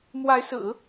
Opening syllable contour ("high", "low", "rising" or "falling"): rising